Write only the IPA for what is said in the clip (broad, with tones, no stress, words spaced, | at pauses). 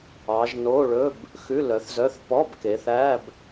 ɑ˨˦ʒno˧˥˧ ɭɵ˧˥˧b | xʉ˧˥˧lœ˨˦θzœ˧˥˧θ pɔ˧˥˧bke˨˦ θæ˧˥˧b